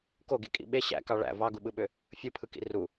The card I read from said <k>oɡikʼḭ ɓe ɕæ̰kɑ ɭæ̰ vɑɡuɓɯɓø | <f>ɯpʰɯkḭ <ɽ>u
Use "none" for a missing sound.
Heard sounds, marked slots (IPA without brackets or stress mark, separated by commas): k, fʲ, r